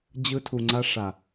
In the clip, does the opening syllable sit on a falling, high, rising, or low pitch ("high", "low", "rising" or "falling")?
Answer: high